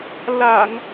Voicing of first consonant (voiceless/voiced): voiced